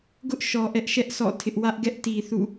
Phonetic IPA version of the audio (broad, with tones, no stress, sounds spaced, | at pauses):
ɡ ʊ˦ ʔ ʃ ɔ˨ ʔ ɛ˦ ʔ ʃ ɛ˦ ʔ s ɔ̰˦˨ tʰ ɪ˦ ʔ w ä˦ ʔ ɡ ɛ˦ ʔ t i˨ θ ṵ˦˨